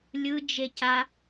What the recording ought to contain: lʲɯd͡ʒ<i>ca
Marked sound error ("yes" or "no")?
yes